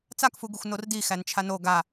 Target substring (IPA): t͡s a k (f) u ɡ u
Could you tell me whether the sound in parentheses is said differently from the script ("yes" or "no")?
no